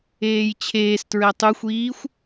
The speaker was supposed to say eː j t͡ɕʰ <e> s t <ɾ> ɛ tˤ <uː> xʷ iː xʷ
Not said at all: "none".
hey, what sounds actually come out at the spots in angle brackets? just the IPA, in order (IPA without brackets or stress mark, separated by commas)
eː, ɹ, u